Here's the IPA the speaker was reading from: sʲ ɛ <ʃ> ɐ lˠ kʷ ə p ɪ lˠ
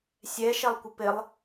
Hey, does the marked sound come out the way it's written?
yes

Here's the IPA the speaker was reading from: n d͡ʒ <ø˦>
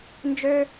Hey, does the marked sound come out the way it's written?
yes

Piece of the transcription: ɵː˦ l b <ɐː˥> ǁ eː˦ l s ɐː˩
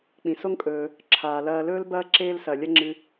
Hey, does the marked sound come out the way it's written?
yes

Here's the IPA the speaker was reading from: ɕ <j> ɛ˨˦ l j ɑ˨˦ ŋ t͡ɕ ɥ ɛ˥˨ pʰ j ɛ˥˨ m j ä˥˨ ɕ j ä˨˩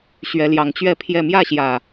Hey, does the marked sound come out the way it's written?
no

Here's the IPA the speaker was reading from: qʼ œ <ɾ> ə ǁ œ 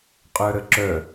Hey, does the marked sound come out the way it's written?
yes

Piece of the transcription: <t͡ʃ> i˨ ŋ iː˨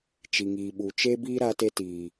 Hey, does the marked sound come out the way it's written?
yes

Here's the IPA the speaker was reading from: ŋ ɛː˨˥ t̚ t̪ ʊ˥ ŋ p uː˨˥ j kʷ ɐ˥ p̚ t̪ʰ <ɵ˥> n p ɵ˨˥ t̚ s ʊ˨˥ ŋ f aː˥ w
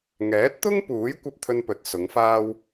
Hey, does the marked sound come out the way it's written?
yes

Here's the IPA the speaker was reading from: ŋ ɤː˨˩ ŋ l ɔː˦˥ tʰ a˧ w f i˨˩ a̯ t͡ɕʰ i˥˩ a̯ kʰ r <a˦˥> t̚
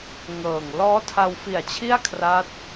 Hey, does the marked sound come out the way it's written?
yes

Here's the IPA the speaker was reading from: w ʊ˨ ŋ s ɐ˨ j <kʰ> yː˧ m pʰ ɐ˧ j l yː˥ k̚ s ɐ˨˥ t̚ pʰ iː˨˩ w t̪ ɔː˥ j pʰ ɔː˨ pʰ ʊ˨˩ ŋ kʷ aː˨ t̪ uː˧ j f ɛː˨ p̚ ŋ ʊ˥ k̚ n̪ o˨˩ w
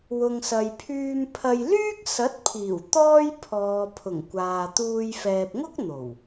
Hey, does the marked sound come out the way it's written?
no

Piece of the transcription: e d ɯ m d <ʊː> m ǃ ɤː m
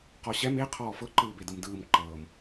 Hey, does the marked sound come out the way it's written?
no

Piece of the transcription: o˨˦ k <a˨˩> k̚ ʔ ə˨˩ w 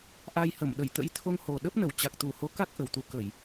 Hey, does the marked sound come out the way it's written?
no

